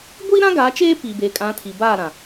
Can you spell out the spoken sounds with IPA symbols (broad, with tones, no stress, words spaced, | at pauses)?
ɡʷiː˦ɾã˦ ɡa˨˦t͡ʃeː˦ piː˨beː˨kʼã˨˦tʰi˨ baː˦˨ɾã˨